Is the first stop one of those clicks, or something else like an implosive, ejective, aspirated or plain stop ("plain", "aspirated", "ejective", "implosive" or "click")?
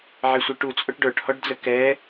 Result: plain